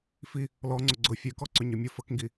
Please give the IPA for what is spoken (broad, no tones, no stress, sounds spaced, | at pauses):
f i | l ɔ ŋ͡ǀ ʊ ɡ͡ǀ ʊ fʲ ø k ɔ ǀ ʏ ɲ œ mʲ ʊ f ə k ŋ ɡ i